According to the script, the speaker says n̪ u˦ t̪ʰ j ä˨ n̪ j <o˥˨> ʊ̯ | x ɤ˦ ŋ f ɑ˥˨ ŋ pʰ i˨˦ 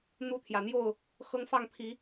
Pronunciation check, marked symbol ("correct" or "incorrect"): correct